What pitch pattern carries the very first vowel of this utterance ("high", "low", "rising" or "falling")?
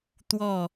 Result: falling